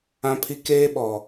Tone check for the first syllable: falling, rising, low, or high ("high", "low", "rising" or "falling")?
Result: high